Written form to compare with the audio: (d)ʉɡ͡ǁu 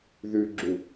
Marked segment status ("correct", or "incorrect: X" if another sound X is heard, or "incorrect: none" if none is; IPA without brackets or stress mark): incorrect: ð